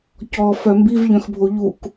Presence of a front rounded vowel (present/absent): present